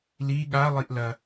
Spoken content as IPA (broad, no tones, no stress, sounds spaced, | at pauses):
l i ɠ a lˠ i ʔ l ɐ